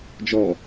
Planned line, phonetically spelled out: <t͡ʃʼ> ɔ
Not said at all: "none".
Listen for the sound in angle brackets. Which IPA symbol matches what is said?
d͡ʒ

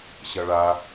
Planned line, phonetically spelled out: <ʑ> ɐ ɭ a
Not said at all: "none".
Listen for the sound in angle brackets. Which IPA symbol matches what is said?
ɕ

